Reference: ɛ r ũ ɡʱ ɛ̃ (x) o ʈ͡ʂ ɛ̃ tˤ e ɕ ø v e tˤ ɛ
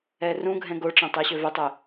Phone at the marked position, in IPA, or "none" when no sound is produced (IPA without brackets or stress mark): ɡ